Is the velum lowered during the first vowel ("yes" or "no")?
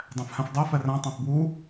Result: yes